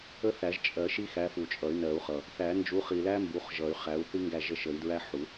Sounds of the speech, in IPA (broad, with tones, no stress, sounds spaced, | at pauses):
ə˦˥ θ æ˨˩˦ ʒ t͡ʃʼ ɜ˨˩˦ ʃ i˦˥ x æ˨˦ f u˨˩ t͡ʃʼ ʌ˨˩˦ y̯ n ɜ˨˩˦ u̯ χ ʌ˨˩ | θ æ˨˩˦ n d͡ʒ u˨˦ χ i˨˩ l æ˦˥ m b u˨˦ χ ʒ ʌ˨˩˦ y̯ χ æ˨˦ u̯ θ i˦˥ ŋ ɡ æ˥˩ ʒ ə˥˩ ʃ ə˨˩˦ i̯ d ɹ æ˦˥ ħ u˨˩˦